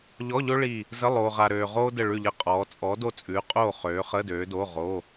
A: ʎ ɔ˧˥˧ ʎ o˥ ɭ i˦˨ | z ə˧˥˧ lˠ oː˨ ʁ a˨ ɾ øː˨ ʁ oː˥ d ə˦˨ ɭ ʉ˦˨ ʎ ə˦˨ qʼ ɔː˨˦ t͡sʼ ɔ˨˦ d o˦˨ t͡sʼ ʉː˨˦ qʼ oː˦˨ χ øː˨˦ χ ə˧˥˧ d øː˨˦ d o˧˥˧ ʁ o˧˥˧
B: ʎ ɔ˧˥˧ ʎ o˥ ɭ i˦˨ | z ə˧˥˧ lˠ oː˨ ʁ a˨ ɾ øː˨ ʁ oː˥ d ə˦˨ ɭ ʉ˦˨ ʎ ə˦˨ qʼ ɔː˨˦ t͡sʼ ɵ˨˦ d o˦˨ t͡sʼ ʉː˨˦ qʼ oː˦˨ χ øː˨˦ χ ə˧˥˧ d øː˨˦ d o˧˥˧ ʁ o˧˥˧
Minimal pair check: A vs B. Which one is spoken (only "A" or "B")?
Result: A